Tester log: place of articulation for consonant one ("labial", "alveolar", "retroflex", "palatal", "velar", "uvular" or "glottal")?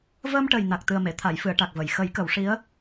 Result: labial